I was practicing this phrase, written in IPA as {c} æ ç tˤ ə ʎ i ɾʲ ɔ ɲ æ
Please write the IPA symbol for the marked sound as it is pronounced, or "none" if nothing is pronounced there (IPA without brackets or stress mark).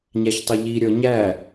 ɲ